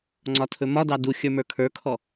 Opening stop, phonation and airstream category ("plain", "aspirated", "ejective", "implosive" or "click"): click